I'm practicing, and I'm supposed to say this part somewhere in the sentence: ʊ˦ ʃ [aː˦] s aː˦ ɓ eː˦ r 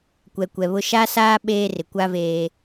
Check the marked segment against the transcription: incorrect: a˦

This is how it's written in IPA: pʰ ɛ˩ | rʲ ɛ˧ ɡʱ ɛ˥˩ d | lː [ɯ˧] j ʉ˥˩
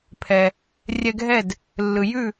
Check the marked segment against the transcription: incorrect: ɯ˩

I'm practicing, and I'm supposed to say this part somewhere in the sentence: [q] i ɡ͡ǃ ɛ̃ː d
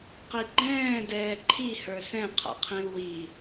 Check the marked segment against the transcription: correct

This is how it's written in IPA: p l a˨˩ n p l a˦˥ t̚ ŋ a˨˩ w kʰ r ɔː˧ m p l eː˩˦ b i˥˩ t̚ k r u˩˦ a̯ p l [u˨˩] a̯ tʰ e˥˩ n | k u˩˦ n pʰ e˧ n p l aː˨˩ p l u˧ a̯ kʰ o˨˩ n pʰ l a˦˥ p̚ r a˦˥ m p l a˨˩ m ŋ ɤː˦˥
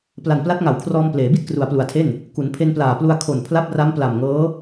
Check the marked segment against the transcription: correct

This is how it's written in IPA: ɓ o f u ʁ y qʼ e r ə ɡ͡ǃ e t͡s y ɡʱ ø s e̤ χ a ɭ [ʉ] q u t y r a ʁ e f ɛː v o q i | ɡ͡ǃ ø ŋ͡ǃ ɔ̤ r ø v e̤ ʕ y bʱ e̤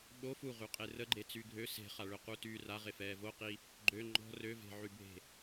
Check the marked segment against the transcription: incorrect: ø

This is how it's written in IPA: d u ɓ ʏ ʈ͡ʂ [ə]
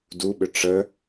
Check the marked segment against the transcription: correct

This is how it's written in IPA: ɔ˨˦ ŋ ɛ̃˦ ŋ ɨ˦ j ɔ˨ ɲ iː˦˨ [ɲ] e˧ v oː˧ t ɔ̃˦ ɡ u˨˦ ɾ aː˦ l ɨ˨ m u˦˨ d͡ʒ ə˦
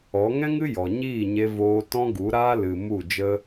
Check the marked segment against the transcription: correct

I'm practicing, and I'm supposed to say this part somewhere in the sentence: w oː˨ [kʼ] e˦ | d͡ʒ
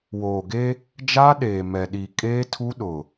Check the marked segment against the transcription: incorrect: ɡ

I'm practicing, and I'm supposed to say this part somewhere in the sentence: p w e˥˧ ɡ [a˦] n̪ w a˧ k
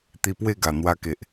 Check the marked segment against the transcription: incorrect: a˨˩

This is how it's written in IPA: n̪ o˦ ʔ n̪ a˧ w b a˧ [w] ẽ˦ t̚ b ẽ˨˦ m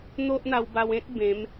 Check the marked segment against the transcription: correct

